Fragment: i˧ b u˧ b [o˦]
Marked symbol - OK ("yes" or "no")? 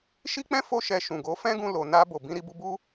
no